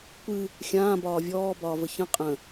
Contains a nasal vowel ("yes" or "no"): yes